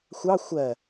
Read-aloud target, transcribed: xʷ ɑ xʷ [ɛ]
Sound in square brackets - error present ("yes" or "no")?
yes